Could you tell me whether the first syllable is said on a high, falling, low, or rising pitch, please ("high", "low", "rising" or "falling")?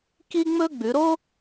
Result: high